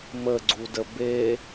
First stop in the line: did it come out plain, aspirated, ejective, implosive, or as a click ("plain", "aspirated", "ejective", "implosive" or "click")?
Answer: click